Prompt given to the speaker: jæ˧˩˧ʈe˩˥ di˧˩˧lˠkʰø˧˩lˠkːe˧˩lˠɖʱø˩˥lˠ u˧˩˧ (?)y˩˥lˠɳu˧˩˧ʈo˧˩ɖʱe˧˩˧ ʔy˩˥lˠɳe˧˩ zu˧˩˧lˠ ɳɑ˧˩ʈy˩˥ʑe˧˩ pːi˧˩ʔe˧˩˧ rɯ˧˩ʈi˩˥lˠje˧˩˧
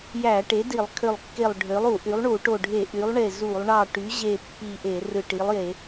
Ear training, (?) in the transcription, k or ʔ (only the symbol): ʔ